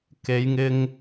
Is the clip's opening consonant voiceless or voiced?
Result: voiceless